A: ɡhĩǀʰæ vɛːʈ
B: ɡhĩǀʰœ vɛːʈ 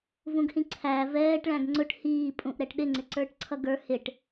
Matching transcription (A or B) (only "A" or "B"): A